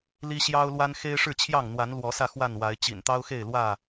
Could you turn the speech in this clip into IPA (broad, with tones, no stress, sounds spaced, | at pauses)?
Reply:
l i˦ ɕ j ɑ˦ ʊ̯ l w a˦ n x e˦ ɪ̯ ʂ ɻ̩˥˨ t͡ɕʰ j ɑ˥˨ ŋ n̪ w a˨˦ n l w ɔ˨˦ s ä˧ x w a˥˨ n w a˨˦ ɪ̯ t͡ɕ ḭ˨˩ n t̪ ɑ˦ ʊ̯ x e˥˨ ɪ̯ l w ä˥˨